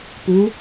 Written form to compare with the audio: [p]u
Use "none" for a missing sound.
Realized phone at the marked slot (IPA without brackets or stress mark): p